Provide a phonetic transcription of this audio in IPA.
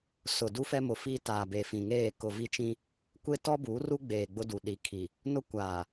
s ʊ˨ d u˦ f ɛ˦ m ʊ˨ f iː˦ t aː˨ b e˨ f ĩ˨ ŋ eː˦˨ k ʊ˨ v i˦ t͡ʃ ĩ˦ | kʷ e˦ t ɔ˦ b uː˨˦ r u˦ ɡ͡b eː˨ ɡ͡b ʊ˦ d u˨ ɗ i˨ kʰ i˨ | n ʊ˦ kʷ aː˨

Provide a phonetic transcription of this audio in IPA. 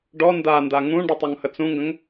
ɖ ɔ n d a n d a ŋ ũ ɖ o tˤ ɔ ŋ h ə t͡s ũ ŋ ɡ ə̃ ŋ

